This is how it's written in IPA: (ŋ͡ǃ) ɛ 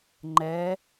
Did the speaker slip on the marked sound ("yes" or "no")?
no